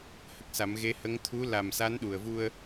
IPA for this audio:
h ə˦˥ k̚ s a˨˩˦ m ɣ e˧˥ h ə˧˥ ŋ t̪ʰ u˧˥ l a˨˩ m s a˧˥ n ɗ u˨˩ ə̯ v u˧ ə̯

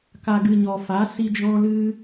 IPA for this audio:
k a˨ ɡ ɨ˨ ɲ ɔ˨ f a˨˦ s i˦ d͡ʒ ɔ̃˦ l ɨ˦

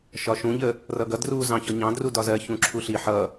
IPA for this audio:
ʃ ɒ ʃ ũ ʎ ə | r ʌ ɡ ʌ d r u z ɑ̃ ç ɔ ɲ ɑ̃ d r u d ɒ z ɜ ç ũ ǁʰ u ɬ i ħ ʌ

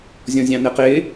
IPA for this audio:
zʲ ɔ̃ zʲ ɑ̃ n ɛ q ɪ

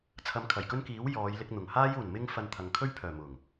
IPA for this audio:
t͡sʰ ɐ˧ m kʰ ɐ˨˩ j k ɵ˥ n k iː˨˥ w j ɔː˨˧ j l ɪ˧ k̚ n̪ ʊ˨˩ ŋ h aː˥ j uː˨˩ n m ɪ˧ ŋ f ɐ˧ n t̪ʰ ɐ˨ ŋ kʰ ɵ˥ ɥ pʰ œː˨˩ m ʊ˨˩ ŋ

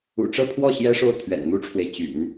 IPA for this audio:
ṵ˨˩ ʈ͡ʂ ɤ˥˧ pʰ w ɔ˥˩ ɕ j ɛ˥ ʂ o˥˩ ʊ̯ t̪ʰ ɥ ɛ̰˨˩ n n̪ u˥ ʈ͡ʂʰ w e˨ ɪ̯ t͡ɕ y̰˨˩˦ n

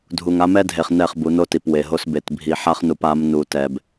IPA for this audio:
dʱ u˨ ŋ a˦ m ɛ˦ dʱ e˨ χ n ɛ˦˨ χ b u˨˦ n o˦ t i˨ p w e˨ ɦ o˦ s b e˨ t bʱ i˨ ħ a˦ χ n u˨ p a˨˦ m n u˨ t ɛ˨ b

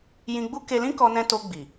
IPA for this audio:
j ĩ˧ ɡ͡b u˦ k e˧ l ĩ˦ k ɔ˧ n ɛ̃˧ t o˧ ɡ͡b i˨

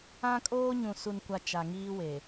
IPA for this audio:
ã˦ kʼ oː˦ ɲ ũ˨ s u˨ n kʷ a˨ t͡ʃ a˨ ŋ iː˦ w e˨

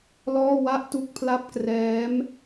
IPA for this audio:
l ɔː˥˩ w a˥˩ ʔ t u˥˩ k̚ pʰ l a˥˩ p̚ k r ɛː˦˥ m

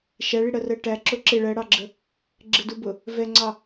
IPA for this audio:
ʃ æ ɭ i ɽ ɜ r ɜ ʈ æ ǁ ʊ ǁ ɪ ɭ ɜ ɽ ɑ ɡ͡ǁ ə | ɡ͡ǁ ɪ d u b ʊ | v ɛ ŋ͡ǀ ɑ

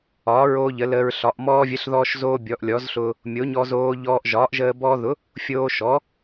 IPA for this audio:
ɒː˩˥ ɹ oː˧ ʎ ə˩˥ l əː˧ ɹ ɬ ɒ˩˥ ʔ m ɔː˧ vʲ ə˩˥ ɬ ð ɔː˧ ʃ z oː˧ bʲ ɔ˩˥ ʔ lʲ ɔ˩˥ z ɬ ʊː˧ | mʲ o˩˥ ɲ ɔ˧ z oː˧ ʎ ɔː˧ ʔ ʒ ɒː˩˥ ʔ ʒ əː˧ b ɔː˧ ð ʊ˩˥ | fʲ oː˧ ʃ ɔ˩˥

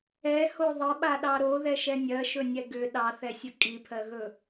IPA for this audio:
ɛ h o ðˤ ə ɓ a ɗ ɑ ɾ o ð ɛ ʃ ɛ nʲ ɜ ʃ ɵ nʲ ɛ ɡ ʏ ɗ ɑ θ ɛ sʲ ə kʼ i pʰ ɜ ɣ ɵ

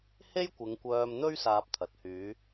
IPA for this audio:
h e˥ j kʷ ɪ˨˧ ŋ kʷ œː˧ m n̪ ɵ˥ ɥ s aː˧ p̚ t̪ʰ ɐ˨˥ t̚ h yː˨˧

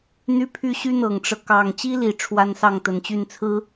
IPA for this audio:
n̪ y˥ pʰ y˥ ɕ y˥ n̪ ɤ˨˩ ŋ ʈ͡ʂ ɤ˦ k ɑ˨˩ ŋ t͡ɕ i˥ l i˨˩ ʈ͡ʂʰ w a˥ n s ɑ˥˩ ŋ t̪ ə˨˩ n t͡ɕ y˥˩ n t͡sʰ ɹ̩˥

